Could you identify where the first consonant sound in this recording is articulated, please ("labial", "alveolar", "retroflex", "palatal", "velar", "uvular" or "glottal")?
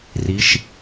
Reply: alveolar